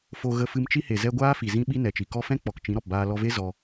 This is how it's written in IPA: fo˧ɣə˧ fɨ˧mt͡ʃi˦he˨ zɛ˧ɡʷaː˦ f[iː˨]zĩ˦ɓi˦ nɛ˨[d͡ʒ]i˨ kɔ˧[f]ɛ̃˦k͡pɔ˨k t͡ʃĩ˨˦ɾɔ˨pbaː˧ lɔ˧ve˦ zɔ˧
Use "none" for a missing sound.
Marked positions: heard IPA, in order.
i˨, t͡ʃ, f

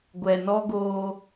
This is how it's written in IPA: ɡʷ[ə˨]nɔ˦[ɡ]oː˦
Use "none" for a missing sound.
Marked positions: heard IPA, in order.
ɛ˨, ɡ

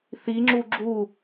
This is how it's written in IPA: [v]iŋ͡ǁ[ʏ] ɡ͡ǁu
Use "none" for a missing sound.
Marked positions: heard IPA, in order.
θ, u

